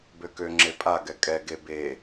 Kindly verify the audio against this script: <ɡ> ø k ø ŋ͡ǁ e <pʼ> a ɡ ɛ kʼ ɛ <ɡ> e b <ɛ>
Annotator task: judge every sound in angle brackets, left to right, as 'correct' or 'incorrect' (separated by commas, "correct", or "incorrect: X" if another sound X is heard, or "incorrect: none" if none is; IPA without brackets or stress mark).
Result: incorrect: b, correct, correct, incorrect: e